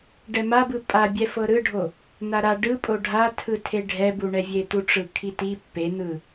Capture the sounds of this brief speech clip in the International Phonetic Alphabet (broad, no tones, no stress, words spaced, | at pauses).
ɖɛmabɯ pʼabʲɛ fɤɾɯɖʱo | naɾa ɖɯpʼo ɖʱatʰɯtʰe ɖʱɛbuɳɛvʲe t̪uʈ͡ʂɯkʰiti pːen̪ɯ